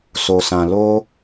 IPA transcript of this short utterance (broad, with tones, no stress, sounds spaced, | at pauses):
s o˨ s ã˨ l o˧